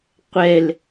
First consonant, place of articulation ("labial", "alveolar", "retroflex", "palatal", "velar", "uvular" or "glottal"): uvular